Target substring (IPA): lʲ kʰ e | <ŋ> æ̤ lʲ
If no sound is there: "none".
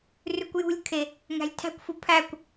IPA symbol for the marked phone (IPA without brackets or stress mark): ŋ